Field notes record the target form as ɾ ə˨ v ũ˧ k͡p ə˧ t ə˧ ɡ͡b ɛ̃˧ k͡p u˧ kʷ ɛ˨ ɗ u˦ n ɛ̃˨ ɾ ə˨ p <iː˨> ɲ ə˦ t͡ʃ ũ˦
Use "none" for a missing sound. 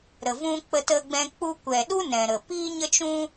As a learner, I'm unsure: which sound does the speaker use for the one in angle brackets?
iː˦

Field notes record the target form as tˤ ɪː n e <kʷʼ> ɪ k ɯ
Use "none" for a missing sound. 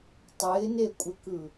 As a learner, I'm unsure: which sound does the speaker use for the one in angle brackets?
kʷʼ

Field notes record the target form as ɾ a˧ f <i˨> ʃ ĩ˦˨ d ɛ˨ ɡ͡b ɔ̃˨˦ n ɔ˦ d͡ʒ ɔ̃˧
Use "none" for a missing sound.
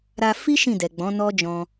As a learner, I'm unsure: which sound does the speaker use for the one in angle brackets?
i˦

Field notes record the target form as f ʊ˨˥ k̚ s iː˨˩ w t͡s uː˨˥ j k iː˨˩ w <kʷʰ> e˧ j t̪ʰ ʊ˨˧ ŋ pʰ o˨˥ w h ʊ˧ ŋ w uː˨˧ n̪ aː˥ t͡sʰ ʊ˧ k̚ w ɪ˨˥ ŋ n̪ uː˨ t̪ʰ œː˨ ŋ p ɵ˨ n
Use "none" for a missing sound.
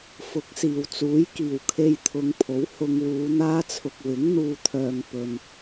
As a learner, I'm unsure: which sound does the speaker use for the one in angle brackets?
kʰ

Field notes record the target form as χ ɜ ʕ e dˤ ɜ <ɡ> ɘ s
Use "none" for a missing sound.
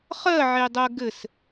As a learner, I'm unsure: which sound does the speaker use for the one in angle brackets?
ɡ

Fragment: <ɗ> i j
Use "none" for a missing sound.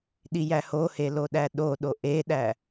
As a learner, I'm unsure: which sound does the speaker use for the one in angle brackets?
ɗ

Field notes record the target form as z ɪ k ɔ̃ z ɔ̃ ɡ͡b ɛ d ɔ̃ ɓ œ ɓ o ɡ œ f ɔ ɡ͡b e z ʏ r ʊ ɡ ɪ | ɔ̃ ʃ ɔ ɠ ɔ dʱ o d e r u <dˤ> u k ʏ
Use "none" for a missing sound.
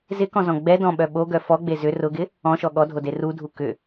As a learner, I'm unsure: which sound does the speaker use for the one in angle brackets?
dʱ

